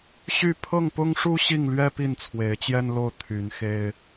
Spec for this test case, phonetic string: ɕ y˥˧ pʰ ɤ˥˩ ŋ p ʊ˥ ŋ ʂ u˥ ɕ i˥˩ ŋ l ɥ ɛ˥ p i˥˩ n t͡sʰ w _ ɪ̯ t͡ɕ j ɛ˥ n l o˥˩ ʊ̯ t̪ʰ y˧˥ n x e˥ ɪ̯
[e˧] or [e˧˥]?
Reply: e˧˥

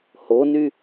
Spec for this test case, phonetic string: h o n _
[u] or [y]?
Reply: y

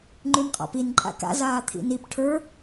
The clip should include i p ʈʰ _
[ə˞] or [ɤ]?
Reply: ə˞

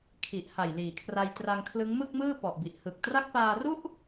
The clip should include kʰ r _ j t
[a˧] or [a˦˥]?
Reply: a˧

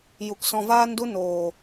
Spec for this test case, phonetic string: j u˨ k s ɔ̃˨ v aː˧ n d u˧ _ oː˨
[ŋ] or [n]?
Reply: n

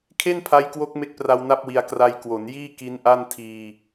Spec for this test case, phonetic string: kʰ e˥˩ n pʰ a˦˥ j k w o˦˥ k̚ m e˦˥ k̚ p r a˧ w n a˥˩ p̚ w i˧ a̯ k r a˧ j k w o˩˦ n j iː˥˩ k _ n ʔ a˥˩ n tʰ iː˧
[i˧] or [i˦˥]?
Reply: i˦˥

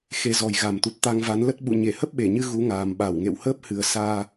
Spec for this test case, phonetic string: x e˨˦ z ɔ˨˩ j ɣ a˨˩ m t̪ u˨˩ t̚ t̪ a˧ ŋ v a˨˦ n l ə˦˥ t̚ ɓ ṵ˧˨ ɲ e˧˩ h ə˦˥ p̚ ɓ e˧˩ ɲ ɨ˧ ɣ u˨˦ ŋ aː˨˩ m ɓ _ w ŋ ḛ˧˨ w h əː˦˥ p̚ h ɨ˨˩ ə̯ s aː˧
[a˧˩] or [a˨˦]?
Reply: a˧˩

